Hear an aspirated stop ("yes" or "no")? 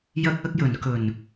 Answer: no